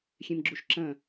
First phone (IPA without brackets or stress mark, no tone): xʲ